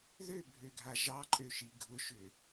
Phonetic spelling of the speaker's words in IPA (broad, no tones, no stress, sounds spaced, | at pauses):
ð ø bʱ ø ɡʱ a ʒ ɑ ǃʼ ø ʃ i ɡʱ ʊ ʃ ʏ